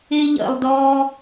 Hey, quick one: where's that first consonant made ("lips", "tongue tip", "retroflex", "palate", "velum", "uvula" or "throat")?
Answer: palate